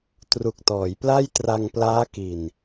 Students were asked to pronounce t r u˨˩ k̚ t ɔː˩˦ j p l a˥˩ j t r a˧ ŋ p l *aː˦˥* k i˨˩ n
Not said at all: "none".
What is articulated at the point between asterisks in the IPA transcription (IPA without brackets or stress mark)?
aː˦˥